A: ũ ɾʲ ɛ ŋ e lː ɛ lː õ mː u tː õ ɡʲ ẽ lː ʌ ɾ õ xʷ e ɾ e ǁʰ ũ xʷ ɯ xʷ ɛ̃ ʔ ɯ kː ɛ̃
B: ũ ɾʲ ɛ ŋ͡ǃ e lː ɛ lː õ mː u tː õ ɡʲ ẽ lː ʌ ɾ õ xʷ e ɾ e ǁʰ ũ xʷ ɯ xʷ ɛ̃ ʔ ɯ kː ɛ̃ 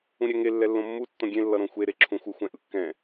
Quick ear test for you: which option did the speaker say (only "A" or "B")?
A